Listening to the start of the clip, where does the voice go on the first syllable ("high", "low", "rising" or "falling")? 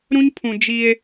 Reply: high